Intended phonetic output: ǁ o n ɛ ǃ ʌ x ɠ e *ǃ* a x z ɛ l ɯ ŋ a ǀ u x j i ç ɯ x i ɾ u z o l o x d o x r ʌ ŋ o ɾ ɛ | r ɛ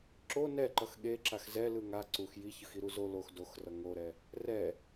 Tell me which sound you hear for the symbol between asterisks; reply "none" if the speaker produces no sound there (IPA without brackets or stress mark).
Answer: ǁ